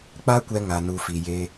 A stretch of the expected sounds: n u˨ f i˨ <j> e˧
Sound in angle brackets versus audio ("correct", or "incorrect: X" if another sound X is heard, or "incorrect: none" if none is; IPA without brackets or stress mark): correct